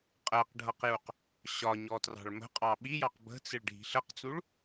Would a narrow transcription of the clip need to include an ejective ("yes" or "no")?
yes